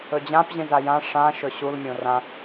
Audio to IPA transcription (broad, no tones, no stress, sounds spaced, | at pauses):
ɵ d͡ʑ ã p ʑ ĩ z a j ã ʂ ã ʃ ɵ ɕ u l mʲ õ r ã